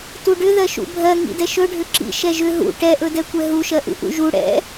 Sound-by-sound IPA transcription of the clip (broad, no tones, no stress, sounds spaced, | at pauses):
t u ɖ ʏ ð ɜ ʃ ṵ bʱ ɜ ŋ ḭ d ɛ ʃ ɵ ɖʱ ʏ ǁ ḭ ʃ ɛ ʒ ʏ ɦ ṵ ʈ ɛ ʔ ɵ d ɛ kʷ ɛ ɦ u ʃ ɜ ʔ ṵ ʔ ṵ ʒ u ɽ ɛ̰